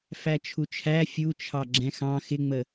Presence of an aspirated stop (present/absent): present